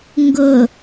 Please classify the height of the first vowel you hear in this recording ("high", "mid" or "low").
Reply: high